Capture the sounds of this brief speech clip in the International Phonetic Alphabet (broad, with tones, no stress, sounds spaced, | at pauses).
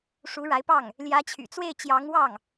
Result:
ʂ u˧˥ ɻ a˧˥ ɪ̯ p ɑ˥˩ ŋ | l j ä˧˥ t͡ɕʰ y̰˨˩ t͡s w e˥˩ ɪ̯ t͡ɕ j ɑ˧˥ ŋ w ɑ˥˩ ŋ